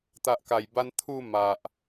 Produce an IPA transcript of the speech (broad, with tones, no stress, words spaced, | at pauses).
t̪a˨ʔka˨˩jba˧n t̪ʰu˥˧ ma˨ʔ